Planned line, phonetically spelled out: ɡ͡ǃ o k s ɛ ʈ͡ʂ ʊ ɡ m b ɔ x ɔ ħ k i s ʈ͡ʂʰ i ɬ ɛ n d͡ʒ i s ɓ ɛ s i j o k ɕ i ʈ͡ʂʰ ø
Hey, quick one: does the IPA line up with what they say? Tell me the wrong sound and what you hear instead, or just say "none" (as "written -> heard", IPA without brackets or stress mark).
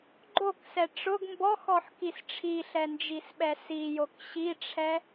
ø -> ɛ